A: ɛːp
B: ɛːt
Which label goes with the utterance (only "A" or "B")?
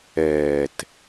B